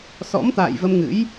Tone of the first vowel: rising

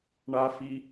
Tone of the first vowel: high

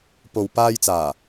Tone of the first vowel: low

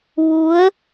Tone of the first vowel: rising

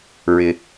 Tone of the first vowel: low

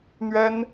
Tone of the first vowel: high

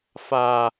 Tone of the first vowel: low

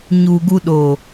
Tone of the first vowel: low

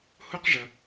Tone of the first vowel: high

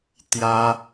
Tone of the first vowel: high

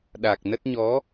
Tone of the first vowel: low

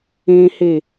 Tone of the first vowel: high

